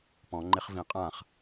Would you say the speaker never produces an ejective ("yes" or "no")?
no